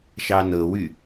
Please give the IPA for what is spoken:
ʃɑnɤwy

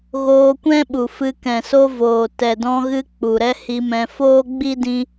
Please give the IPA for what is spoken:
ɣoː˧kʷɛ̃˦ɓu˨fɨ˧ kɛ̃˨so˧voː˨ tɛ˨dɔ̃˧ɣɨ˧ k͡pu˨ɾɛ˦hi˧mɛ̃˧ foː˦ɡ͡bi˦ dĩ˧

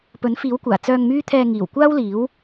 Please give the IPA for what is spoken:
pɵ˨˥nfiː˨˥wkʷaː˨˩ t͡sœː˧ŋmyː˥t̪ʰɛː˧ ŋiː˨˩wkʷaː˥wliː˨˥w

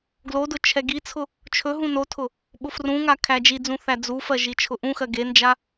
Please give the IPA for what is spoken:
ɡlodʊ t͡ʃʰɛɡit͡sʰʊ | t͡ʃʰɵɦũ notʰʊ | ɓʊfrũŋa kʰæd͡ʒid͡zũ θæd͡zufɜ ʒit͡ʃʰʊʔũxɜ ɡend͡ʒa

